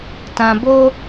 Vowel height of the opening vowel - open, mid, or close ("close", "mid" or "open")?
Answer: open